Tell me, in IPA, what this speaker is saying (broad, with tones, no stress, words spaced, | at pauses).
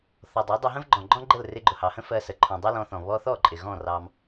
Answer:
θɔ˨dˤɜ˨˦dˤə˧ɦə̃˦v ɡ͡ǃɔ̃˨ɡ͡ǃɔ̃˦ɡ͡ǃə˦˨l rɪ˧ɡ͡ǃʊ˨hɑ˨hə̃˦ fɜ˧sə˨ ǃʰɔ̃˨dˤɜ˦lɔ̃˧θɔ̃˨ βɔ˧θɔ˦˨ ǃʼɪ˨ɣɔ̃˦˨ rɑ˦m